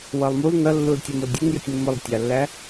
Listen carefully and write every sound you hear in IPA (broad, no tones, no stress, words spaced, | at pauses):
wʌlˠmul nʌlːul tʲɛmʊldʲʊnjətʲ mːʊlˠtʲɑlːæ